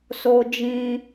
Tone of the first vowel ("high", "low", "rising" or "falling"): high